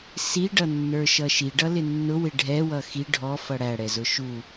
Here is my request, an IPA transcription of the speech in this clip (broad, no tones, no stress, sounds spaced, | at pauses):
s i ɖ ʌ nː ə˞ ʃ ʌ ʃ i ɖ ʌ l ɪ nː ʊ w ɪ ɖʱ ɛ w ʌ x i ɖʱ ɔ f ʌ ɽ æ ɽ ɛ z ʊ ʃ u